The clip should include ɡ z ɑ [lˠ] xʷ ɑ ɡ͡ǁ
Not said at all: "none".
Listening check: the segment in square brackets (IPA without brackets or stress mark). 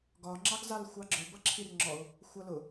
l